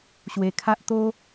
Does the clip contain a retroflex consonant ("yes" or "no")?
no